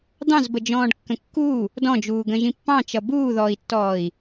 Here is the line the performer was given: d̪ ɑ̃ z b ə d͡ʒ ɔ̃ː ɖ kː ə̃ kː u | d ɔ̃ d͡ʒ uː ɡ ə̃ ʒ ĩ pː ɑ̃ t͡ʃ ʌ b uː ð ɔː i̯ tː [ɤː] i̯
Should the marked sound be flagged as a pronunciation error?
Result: yes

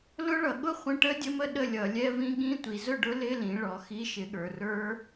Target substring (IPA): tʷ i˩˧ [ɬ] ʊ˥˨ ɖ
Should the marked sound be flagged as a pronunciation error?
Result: yes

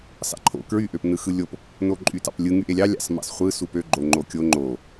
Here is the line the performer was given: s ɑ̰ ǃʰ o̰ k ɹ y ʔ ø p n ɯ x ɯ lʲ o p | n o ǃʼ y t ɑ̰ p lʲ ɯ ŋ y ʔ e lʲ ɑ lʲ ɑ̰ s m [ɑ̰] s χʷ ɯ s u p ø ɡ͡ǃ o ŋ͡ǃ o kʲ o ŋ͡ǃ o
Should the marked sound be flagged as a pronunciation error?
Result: no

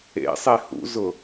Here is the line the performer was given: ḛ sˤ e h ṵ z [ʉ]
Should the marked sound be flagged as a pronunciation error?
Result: yes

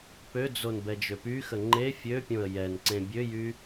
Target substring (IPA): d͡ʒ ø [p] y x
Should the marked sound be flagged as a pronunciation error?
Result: no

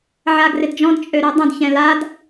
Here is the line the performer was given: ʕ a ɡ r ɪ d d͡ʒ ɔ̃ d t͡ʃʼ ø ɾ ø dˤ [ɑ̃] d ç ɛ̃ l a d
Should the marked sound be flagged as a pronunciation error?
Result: yes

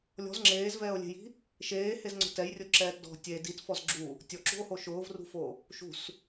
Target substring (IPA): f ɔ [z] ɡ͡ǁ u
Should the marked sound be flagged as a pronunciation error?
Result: no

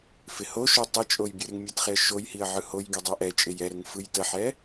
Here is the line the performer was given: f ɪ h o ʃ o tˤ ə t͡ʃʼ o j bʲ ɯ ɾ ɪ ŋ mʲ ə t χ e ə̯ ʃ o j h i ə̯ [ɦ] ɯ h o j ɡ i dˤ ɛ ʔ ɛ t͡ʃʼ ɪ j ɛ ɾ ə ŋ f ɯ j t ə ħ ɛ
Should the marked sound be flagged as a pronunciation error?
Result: yes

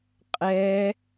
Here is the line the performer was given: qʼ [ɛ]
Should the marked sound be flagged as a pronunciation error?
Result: no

